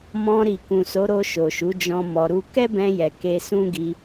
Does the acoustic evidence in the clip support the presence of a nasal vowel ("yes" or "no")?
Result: yes